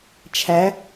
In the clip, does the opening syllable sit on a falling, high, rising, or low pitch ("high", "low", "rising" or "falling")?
rising